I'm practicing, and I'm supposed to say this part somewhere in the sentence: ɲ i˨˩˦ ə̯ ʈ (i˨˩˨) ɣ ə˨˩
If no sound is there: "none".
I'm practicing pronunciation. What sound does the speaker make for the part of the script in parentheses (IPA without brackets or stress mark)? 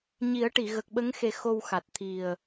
i˨˩˨